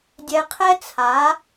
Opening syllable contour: low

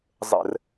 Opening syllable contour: low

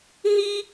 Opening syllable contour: high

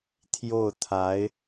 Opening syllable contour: falling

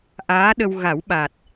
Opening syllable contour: rising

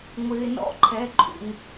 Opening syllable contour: low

